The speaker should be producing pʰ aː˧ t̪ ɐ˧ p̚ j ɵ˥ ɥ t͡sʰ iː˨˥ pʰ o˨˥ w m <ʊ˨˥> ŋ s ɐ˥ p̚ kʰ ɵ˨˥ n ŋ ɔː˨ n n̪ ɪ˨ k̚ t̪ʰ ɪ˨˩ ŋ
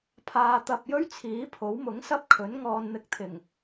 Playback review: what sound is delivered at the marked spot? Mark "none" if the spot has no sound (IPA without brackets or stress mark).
ʊ˨˥